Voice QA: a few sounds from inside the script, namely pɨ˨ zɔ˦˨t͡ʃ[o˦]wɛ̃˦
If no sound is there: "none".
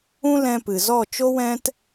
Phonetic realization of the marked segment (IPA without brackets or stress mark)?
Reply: o˦